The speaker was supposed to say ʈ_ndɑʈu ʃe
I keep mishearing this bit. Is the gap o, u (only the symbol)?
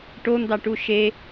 o